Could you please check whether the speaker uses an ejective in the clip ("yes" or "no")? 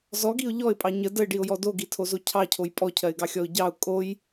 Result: yes